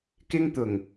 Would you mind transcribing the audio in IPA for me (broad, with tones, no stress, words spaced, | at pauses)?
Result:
kɪ˥ŋt̪ʊ˨˩ŋ